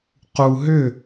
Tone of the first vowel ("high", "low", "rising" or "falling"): low